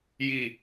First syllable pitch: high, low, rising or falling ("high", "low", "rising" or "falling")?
low